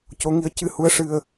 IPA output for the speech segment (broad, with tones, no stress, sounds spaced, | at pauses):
c o˧˥ ŋ i˧˥ ə̯ c ɨ˧ h u˧˥ ə̯ ʂ ɨ˧ ə̯